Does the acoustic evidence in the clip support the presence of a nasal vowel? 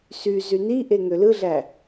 no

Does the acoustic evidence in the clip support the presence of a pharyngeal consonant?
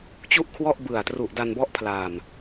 no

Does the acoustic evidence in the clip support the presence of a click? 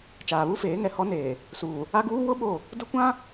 no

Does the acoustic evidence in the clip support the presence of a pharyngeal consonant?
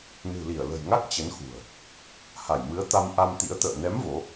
no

